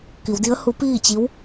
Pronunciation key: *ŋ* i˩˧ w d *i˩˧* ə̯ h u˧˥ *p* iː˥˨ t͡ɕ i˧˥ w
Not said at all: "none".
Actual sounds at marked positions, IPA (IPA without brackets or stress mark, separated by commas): k, i˧˥, p